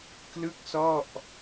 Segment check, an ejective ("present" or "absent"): absent